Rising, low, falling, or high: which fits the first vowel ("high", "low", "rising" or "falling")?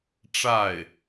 falling